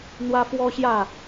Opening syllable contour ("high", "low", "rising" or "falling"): high